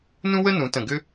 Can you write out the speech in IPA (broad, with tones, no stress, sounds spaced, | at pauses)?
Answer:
n ũ˥ w ə˥ n ũ˩˧ t ə̃˧˩ ɡ ʏ˥